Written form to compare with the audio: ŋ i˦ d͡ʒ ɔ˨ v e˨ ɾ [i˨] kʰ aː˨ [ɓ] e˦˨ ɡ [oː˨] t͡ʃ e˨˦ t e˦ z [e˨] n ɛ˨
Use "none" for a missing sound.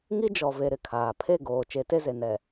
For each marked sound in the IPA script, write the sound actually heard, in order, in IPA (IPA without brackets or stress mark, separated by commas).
ɪ˨, pʰ, oː˨, e˨